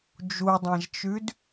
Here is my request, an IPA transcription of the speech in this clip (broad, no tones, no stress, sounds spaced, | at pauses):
d͡ʒ u dˤ ã ʒ t͡ʃ ʉ d